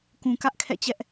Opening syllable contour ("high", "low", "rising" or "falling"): low